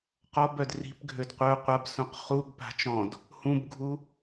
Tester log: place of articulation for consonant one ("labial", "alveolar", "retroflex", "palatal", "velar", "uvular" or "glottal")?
uvular